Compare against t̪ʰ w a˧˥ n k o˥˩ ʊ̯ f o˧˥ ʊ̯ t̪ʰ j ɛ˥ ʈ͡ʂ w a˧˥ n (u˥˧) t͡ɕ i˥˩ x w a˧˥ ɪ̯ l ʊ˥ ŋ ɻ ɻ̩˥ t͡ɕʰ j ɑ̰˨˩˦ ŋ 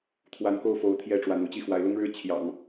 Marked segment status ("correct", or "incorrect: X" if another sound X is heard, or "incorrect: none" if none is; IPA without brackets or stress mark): correct